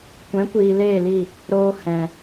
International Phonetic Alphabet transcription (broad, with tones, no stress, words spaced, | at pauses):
kʷɛ̃˨˦kʷiː˨ leː˦˨li˦˨ | ɾoː˧ hɛ̃˨